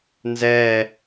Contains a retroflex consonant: no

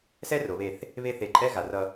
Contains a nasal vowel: no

